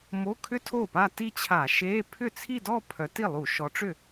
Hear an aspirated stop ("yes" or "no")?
yes